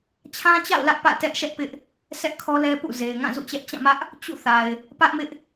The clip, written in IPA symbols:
t͡ɕʰã˦t͡ɕa̰˦˨ʊ̯ lä˦ʔpä̰˦˨tɛ˦ʔʃɛ˦ʔ pɪ˦ʔ | sɛ˦ʔkʰɔ˦lɛ˦pṵ˦˨ ze˨ɪ̯ŋã˦˨zṵ˦˨t͡ɕɛ˦ʔ t͡ɕã˦˨mä˦ʔ | t͡ɕṵ˦˨ θa˨ɪ̯ | pä˦ʔmɪ˦ʔ

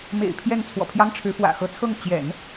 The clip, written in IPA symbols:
mḛ˨˩ɪ̯ pʰjɛ˥˩nt͡sʰwɔ̰˨˩pʰjɑ˥ŋʈ͡ʂʰɻ̩˧˥ fwä̰˨˩xɤ˧˥t͡sʰɤ˥˩ŋ t͡ɕjɛ̰˨˩˦n

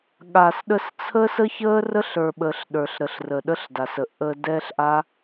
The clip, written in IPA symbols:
ɠa˨sɗə˧s t͡sʰəː˦sə˦çəː˦ rə˦ɬə˞˨ɓəː˨ɬ ɗə˞˨ɬɾə˨ɬrə˨ ɗə˦ɬda˨sə˨ ʔə˧dɛː˦ɬʔa˦

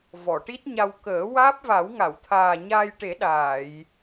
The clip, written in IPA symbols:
vɔ˨˩˨ʈi˦˥t̚ɲa˧w kəː˨˩˦ waː˦˥p̚va˨˩˦wŋa˨˩˨wt̪ʰaː˨˩ ɲaː˧jʈe˨˩˦ ɗaː˨˩˨j

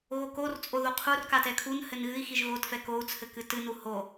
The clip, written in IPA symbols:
ɣokort͡sʼo ðoqʰur katɛkʰun hɘnɣɨi̯ xiʒɣotfɛ kou̯t͡sʰɘ kɨtɨnu ho

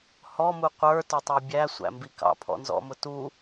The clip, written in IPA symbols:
hɔ muqʷə˞ tə˞tˤə˞bʲæ sʷæ̰mbikɑ̰ pʰɔ̰nzɔ̰mʊtu

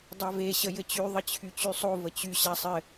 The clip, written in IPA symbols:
dˤave ɕəjɘt͡ɕy ðˤət͡ɕʰyt͡ɕysˤo vət͡ɕy ɕasˤɘ

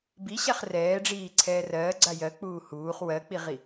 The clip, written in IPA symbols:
biɕaχ rɛːɖ͡ʐiːǀʰɛː rɜːɡ͡ǀa jɜk͡puː huːχ wɜk͡piʁi

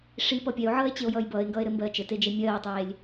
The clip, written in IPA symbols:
ʂipʌ pʲɛo̯ʕʌːe̯t͡ɕeo̯jʌːj bʌːe̯ŋɡʌːe̯ɾɘmbɜː t͡ʃɘted͡ʒe mʲɜːtˤeːlʲ

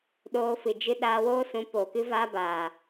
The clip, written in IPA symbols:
ɗoː˧fɨ˨ d͡ʒɨ˧ ɗaː˧woː˦ sũ˨˦poː˨kɨ˦vaː˦ baː˨

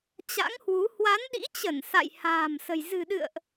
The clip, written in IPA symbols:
t͡ɕa̰˧˥ŋhwu˨˦ hwa˨˦nɗḭ˧˥t͡ɕə˧˩n sa̰˧˨j ha̤ː˨˩m sə̤˨˩j zɨ̤˨˩ɗɨ̰˧˨ə̯ʔ

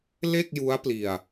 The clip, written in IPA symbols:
le˥˩k̚ju˦˥a̯ pli˧a̯

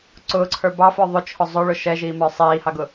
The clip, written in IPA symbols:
ǀʊːǀʰə˞ bɑfə˞ ðˤʊt͡ʃʰʊ zˤʊɭʊ ʃɛʒiːmə˞ sˤiːhɑɡʊ

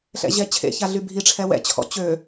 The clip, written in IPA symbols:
ɬɛ̰ʑɛt͡ɕʰḛça ɮybʱiʈ͡ʂʰɛ wɛ̰t͡ɕʰɔ̰ t͡ɕø

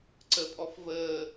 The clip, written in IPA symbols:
ǀəpʼɔf vəː

